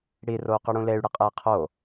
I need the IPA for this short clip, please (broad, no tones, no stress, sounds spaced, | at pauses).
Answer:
ɽ i r o u̯ q ɨ ɽ ũ l e y̯ ɽ ɨ qʼ e i̯ qʰ o